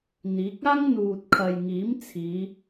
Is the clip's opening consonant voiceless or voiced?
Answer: voiced